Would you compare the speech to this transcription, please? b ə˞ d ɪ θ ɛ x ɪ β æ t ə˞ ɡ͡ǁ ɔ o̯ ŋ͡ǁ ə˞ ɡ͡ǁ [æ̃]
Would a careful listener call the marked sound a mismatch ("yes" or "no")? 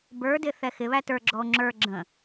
yes